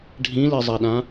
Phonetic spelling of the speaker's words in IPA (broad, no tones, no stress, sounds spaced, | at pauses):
ɖʱ ĩ l i zˤ a ɗ ã